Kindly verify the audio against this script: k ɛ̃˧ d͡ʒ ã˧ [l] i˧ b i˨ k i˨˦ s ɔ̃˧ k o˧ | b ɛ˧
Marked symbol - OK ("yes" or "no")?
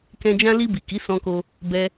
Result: yes